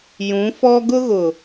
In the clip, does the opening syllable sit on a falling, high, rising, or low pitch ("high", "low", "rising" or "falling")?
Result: rising